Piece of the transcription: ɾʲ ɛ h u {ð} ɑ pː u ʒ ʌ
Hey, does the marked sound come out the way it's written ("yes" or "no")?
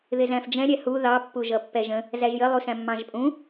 yes